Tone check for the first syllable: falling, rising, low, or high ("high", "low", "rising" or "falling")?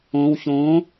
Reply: low